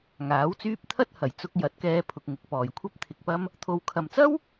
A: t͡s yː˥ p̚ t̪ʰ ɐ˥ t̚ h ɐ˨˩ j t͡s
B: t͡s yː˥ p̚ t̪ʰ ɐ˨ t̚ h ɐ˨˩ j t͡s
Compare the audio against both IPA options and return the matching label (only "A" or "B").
A